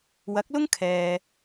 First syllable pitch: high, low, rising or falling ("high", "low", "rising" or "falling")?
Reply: rising